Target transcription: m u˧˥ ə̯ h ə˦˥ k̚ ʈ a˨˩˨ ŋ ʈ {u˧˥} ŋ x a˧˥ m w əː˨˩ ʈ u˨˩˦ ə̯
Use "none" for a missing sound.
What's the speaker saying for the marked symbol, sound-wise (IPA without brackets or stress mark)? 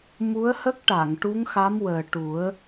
u˧˥